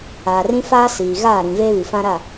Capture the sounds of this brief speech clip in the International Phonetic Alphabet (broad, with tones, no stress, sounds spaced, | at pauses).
aː˨ r ĩ˦ f aː˦ s iː˨ ɣ aː˦˨ ɾ ĩ˨ v eː˦ β i˨ f ã˦ ɾ a˦˨